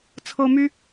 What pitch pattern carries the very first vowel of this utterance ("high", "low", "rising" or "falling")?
high